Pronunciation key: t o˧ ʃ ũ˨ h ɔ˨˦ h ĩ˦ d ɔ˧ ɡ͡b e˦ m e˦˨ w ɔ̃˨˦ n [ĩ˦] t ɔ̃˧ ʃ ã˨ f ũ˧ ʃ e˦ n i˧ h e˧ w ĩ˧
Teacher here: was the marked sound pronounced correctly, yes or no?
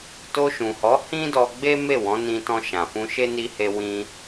no